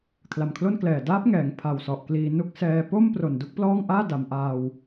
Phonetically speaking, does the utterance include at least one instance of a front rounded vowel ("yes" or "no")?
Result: no